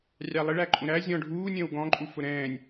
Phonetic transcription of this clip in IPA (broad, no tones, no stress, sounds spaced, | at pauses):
rʲ ɑ lˠ ɪ ɭ æ ǃʼ ũ ɾ æ zʲ ɔ̃ ɖʱ uː nʲ ə̃ː w ɡ ɔ̃ ǃʼ u f ʊ ɾ ɛ̃ː nʲ